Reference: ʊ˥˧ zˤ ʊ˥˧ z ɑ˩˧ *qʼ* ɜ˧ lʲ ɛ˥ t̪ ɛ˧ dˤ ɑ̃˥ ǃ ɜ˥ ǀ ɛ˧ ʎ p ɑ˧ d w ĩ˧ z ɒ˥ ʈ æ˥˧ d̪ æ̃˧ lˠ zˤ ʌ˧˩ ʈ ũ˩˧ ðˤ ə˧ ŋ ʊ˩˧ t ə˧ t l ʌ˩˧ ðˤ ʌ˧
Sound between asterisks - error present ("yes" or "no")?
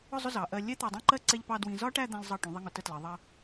yes